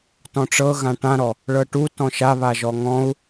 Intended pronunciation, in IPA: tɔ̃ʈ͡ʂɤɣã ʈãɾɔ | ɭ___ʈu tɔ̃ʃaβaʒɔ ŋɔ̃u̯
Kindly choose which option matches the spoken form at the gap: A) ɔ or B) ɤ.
B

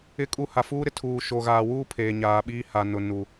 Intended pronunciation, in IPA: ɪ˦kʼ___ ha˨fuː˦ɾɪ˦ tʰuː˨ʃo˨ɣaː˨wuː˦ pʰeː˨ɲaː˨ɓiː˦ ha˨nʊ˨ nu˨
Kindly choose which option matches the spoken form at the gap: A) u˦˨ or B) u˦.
A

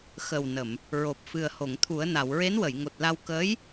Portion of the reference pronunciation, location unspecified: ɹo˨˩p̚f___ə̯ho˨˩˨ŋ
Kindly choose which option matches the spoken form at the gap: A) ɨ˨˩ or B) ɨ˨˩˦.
A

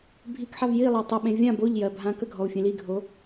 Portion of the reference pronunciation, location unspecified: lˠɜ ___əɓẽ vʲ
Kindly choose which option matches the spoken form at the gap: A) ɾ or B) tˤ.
B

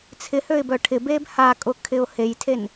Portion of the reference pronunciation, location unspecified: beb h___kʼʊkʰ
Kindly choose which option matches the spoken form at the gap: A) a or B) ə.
A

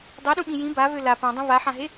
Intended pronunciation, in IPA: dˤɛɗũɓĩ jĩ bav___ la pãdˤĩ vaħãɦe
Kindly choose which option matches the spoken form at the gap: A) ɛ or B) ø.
B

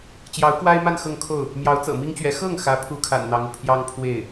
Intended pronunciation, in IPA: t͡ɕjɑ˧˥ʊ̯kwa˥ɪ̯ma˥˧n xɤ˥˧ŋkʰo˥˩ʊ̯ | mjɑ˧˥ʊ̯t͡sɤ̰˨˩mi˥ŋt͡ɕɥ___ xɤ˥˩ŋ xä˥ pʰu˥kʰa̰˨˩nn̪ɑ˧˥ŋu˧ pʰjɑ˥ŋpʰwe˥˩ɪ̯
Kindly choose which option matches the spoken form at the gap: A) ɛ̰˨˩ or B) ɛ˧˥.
B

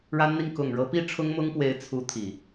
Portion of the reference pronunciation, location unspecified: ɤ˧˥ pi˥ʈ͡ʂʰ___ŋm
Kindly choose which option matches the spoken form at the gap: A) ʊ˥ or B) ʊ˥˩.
A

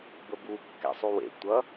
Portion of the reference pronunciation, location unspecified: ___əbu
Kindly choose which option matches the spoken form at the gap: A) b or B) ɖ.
A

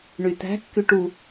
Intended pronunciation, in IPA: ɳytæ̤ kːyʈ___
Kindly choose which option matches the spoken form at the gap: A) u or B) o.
A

